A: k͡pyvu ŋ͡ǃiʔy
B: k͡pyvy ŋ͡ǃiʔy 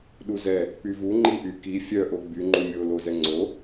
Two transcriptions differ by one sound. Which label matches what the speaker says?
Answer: A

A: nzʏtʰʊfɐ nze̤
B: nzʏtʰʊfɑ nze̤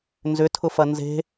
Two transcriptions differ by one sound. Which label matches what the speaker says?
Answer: A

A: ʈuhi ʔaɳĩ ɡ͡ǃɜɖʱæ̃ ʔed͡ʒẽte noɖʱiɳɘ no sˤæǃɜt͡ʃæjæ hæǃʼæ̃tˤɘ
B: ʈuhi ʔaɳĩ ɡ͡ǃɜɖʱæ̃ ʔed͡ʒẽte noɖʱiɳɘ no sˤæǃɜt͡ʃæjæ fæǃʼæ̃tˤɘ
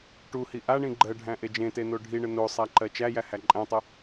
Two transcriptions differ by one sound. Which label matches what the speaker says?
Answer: A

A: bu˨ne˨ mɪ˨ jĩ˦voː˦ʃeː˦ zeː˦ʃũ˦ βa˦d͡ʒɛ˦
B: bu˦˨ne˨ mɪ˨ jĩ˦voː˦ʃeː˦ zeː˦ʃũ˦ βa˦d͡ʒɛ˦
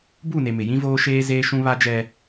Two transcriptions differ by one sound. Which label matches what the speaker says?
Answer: B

